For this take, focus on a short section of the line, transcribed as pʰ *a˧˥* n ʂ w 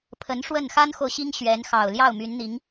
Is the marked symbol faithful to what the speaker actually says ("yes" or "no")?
no